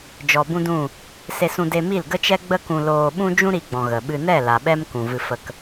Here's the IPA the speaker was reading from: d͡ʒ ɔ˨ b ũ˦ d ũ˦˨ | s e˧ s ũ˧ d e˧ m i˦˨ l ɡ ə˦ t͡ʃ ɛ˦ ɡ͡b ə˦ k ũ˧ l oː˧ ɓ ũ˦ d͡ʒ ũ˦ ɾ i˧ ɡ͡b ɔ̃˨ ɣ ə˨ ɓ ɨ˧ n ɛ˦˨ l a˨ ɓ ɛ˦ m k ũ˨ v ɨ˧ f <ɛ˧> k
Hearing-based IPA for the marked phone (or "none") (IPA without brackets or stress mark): ə˧